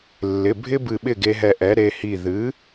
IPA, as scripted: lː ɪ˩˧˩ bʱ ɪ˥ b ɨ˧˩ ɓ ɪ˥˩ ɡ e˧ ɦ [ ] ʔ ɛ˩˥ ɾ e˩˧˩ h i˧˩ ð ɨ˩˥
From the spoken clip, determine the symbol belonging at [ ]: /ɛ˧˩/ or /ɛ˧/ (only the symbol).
ɛ˧˩